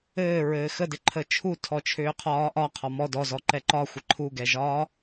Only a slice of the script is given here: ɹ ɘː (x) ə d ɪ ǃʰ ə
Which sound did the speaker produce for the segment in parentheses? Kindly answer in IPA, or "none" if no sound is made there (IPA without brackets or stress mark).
x